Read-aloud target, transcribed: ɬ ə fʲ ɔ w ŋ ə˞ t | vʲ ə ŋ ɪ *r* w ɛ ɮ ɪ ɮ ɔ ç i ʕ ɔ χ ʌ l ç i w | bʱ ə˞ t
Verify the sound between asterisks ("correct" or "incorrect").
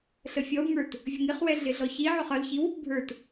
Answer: incorrect